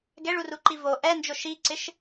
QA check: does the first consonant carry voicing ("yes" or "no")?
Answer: yes